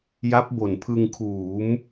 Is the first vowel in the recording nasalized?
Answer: no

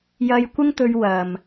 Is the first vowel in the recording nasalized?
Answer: no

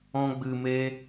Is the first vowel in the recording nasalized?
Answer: yes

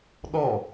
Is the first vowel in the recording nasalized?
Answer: no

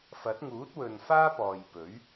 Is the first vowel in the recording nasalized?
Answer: no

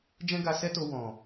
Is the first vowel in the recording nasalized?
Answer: yes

